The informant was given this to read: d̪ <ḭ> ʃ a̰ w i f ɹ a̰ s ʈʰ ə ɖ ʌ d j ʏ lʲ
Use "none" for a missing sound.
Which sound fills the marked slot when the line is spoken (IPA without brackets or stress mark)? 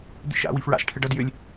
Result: ḭ